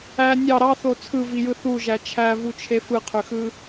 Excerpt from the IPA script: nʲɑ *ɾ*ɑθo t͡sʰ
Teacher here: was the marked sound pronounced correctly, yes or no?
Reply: yes